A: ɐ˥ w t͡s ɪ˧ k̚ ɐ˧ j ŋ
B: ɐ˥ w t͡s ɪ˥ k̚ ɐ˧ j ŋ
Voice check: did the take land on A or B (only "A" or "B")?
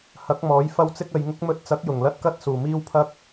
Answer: B